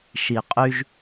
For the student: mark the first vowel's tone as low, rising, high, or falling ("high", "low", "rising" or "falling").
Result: low